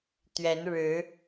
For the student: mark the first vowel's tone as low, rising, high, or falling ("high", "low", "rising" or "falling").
rising